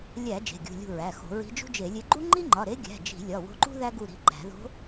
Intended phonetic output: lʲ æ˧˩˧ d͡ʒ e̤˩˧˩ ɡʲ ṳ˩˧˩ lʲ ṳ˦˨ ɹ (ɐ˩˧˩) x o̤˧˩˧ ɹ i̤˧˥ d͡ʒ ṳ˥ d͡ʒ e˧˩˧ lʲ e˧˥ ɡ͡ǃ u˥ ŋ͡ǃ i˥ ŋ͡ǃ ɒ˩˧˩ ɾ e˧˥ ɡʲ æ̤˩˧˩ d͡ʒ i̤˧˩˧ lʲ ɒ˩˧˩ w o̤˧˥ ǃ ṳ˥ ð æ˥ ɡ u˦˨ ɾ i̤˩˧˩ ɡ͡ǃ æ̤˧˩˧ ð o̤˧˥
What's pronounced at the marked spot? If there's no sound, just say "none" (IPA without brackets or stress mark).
æ˩˧˩